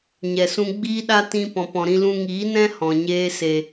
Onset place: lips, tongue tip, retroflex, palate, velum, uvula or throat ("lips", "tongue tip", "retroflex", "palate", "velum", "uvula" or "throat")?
palate